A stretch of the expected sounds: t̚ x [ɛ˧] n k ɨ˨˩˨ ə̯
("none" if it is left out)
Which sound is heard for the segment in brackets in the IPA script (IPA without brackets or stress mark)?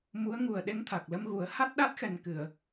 ɛ˨˩